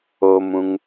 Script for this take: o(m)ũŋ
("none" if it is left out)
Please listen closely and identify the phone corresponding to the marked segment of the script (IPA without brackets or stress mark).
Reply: m